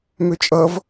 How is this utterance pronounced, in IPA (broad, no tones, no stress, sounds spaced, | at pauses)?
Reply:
m ø t͡ʃʼ ʌ v